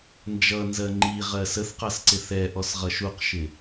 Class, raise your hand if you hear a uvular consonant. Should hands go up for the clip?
yes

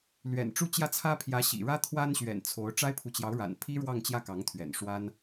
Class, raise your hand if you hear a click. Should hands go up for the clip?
no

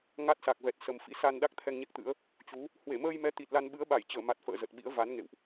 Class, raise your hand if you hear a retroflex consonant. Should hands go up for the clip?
no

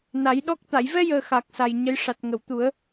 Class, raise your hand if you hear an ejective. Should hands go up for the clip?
no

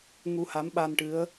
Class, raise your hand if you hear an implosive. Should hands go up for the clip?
yes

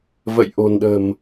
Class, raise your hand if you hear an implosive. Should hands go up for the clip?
yes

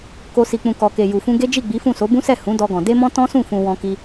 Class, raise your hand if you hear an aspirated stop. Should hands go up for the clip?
no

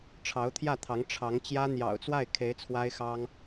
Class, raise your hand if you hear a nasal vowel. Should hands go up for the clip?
no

